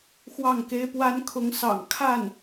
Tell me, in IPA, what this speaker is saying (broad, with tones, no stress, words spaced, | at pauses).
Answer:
xwɑ˥˩ŋke˥ɪ̯pwa˥n kʰʊ˧˥ŋsɑ̰˨˩ŋ kʰa˥˩n